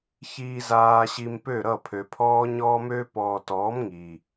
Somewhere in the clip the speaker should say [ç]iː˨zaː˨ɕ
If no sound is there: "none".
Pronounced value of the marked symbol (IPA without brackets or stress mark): ç